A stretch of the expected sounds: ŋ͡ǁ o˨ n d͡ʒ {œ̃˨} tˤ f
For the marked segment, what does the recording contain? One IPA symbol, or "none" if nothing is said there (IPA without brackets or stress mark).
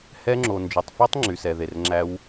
œ˨